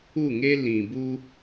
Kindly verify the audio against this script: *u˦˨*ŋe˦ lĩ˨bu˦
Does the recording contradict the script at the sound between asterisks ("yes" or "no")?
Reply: no